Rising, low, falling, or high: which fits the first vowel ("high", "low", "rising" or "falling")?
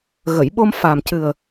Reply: low